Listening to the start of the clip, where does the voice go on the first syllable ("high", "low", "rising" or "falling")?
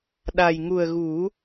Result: low